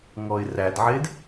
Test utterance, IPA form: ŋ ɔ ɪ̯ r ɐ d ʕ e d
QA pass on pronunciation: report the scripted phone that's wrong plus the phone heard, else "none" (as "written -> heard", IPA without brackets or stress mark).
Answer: ɐ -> æ